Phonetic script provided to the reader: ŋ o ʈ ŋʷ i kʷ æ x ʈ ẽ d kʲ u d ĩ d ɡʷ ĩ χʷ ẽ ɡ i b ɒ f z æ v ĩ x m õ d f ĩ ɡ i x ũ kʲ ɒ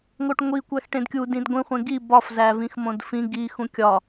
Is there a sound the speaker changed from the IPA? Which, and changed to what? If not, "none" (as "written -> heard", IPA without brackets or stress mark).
none